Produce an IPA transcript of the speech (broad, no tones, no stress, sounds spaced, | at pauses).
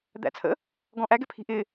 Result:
d̪ æ̰ t͡sʰ ə̰ | ɡ ɔ̃ ʔ æ ɡ ɛ pʰ i̤ ʔ ɪ